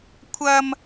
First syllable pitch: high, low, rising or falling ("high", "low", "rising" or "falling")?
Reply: high